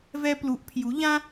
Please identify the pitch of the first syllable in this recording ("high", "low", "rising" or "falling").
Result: high